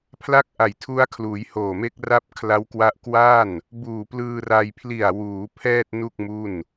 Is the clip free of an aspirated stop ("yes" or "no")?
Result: no